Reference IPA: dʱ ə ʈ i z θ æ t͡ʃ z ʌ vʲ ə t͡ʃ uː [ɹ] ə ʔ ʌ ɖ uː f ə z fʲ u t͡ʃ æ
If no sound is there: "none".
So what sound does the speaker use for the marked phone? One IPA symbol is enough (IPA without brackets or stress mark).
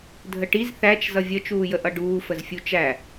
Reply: j